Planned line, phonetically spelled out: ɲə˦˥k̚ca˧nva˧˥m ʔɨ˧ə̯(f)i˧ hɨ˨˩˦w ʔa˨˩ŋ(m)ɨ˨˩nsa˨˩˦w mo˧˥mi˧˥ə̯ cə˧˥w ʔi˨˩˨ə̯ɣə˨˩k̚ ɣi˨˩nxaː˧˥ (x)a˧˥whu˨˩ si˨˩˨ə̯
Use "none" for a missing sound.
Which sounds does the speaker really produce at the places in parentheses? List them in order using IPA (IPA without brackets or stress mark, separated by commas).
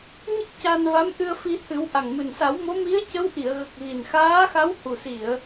f, m, x